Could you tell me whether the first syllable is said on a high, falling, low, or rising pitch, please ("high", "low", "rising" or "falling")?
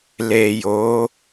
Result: low